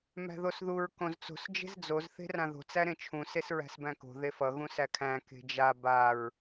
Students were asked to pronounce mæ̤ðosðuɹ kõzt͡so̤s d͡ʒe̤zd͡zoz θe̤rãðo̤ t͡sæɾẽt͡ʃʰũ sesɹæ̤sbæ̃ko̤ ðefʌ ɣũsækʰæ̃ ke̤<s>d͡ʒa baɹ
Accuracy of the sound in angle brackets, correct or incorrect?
incorrect